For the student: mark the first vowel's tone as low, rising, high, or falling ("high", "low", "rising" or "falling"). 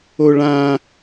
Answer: high